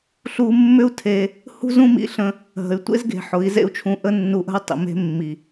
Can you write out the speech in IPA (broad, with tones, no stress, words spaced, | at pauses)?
ɬu˧mːʏ˦u̯ tʰe˧ | hṳ˦zũ˦mḭ˧ɬə̃˧ | ɦə̤˨y̯tʷḛ˦zɡe̤˨ ħʊ˨˦i̯ zḛ˦u̯t͡ʃʰũ˧ʔə˦ nːu˧ʔə̤˦u̯ tˤḭ˨ me̤˧ mːi˨